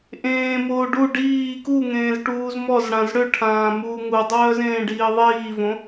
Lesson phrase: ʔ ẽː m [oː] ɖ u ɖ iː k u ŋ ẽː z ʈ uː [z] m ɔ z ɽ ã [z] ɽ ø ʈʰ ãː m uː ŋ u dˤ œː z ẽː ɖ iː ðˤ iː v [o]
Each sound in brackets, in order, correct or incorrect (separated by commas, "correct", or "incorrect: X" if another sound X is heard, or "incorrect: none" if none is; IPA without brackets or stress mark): correct, correct, correct, incorrect: õ